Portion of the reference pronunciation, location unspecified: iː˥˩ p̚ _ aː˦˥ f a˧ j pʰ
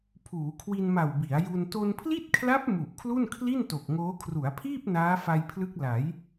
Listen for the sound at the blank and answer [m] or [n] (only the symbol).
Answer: n